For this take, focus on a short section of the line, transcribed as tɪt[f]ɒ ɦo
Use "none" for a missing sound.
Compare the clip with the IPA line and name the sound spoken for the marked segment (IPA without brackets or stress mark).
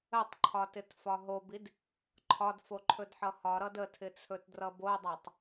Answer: f